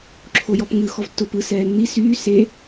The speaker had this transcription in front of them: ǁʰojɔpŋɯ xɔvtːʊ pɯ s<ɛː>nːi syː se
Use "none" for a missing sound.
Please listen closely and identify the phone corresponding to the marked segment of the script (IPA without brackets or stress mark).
ɛː